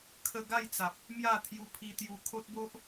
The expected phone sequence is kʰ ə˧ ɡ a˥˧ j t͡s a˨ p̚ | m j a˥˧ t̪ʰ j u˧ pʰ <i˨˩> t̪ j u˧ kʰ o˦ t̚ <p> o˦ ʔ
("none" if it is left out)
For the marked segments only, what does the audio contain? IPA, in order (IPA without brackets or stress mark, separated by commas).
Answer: i˧, b